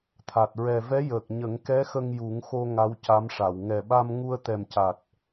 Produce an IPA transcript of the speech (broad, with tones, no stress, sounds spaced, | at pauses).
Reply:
t̪ʰ a˨˩ t̚ ɹ ɛ˨˩ v ɛ˧˥ j əː˨˩ k̚ ɲ ə˨˩˦ ŋ k ɛ˧˥ x ə˧ ŋ j u˨˩˦ ŋ x o˧ ŋ a˧˥ w c a˧˥ m ʂ a˨˩˨ w ŋ ɛ˨˩ ɓ a˧ m ŋ u˧ ə̯ t̪ ɛ˨˩ m c a˨˩ t̚